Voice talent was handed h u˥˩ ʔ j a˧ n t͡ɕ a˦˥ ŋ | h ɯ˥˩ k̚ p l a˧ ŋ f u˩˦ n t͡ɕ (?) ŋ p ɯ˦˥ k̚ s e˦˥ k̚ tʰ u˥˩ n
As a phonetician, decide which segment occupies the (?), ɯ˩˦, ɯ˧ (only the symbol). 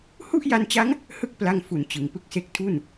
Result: ɯ˩˦